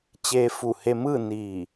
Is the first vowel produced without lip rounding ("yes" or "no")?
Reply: yes